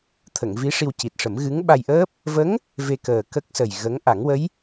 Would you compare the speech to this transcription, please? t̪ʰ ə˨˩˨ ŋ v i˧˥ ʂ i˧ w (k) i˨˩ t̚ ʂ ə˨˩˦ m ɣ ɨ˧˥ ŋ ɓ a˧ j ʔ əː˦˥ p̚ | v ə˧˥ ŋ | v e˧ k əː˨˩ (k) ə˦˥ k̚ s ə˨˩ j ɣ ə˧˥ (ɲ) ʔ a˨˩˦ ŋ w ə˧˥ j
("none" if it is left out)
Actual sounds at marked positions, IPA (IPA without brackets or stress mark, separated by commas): c, k, ŋ